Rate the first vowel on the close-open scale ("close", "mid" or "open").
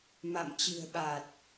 open